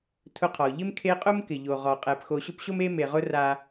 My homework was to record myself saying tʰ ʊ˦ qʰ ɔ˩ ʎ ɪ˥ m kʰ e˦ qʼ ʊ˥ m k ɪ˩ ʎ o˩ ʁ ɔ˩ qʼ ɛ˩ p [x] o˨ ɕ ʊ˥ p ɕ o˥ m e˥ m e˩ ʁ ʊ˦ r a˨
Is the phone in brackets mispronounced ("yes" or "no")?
no